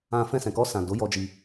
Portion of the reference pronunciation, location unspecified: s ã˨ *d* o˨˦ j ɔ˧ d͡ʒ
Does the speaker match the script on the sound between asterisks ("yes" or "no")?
yes